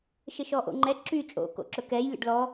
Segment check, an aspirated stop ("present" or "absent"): absent